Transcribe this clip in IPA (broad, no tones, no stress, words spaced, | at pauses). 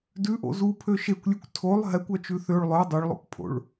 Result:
dʉʔo̰ zupʰø ʃekʷlʲʉkʷ tʰolˠ ɦɛkʷœt͡ʃʉ θøɭ lˠœ dˤɵɭlˠo̰kpʰo̰ɭ